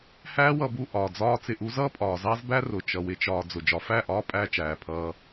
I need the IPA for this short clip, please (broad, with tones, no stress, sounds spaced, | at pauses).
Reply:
h æː˦ w ʌ˧ b u˧ ʔ ɒː˨ d͡z ɒː˦ t͡s ɪ˧ ʔ u˦ z ʌː˦ pʼ ɒː˨ z ɑ˦ z b æ˦ r ʊ˨ t͡ʃ ʌ˨ w ɪ˦ t͡ʃ ɒː˧ d͡z ʊ˨ d͡ʒ ɒ˨ f æ˦˨ ʔ ɒː˦ pʼ æː˦ t͡ʃ æː˨ pʰ ʌː˧